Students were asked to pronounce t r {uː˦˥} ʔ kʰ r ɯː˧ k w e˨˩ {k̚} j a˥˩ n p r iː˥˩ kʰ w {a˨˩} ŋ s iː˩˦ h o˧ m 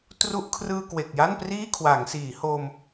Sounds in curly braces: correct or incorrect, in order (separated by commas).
incorrect, correct, incorrect